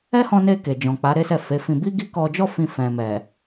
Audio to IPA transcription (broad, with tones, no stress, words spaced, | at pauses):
ɛ˦hɔ̃˧ne˧ ke˨d͡ʒɔ̃˨k͡pa˨˦ ɾe˦sɛ˦˨fe˨˦fĩ˧ bi˦ɡi˦kɔ˧d͡ʒɔ˦ fĩ˧fɛ̃˨mɛ˨